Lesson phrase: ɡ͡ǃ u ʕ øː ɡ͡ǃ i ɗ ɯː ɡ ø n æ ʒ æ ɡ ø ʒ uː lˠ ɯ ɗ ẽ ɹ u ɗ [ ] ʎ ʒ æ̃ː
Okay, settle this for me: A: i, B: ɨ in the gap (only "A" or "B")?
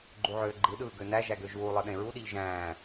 A